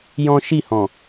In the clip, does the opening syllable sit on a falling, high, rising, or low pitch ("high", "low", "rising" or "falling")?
high